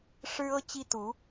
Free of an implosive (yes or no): yes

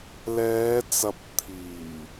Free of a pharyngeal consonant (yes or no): yes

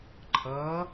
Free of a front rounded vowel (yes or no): yes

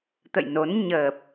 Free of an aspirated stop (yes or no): yes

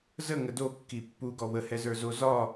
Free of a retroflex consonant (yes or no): yes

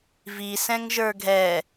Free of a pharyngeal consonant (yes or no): yes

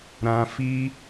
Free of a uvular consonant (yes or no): yes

